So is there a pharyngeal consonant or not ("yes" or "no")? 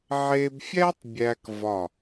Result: yes